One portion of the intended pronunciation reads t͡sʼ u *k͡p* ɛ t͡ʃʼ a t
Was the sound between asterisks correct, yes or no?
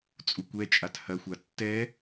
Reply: no